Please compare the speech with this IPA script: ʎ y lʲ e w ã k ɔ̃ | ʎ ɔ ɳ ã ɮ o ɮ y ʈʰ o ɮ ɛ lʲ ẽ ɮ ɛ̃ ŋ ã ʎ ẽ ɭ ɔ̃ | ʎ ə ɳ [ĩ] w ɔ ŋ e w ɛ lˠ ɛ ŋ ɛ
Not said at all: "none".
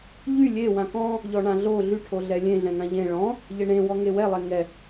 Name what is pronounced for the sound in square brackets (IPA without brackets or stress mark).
ẽ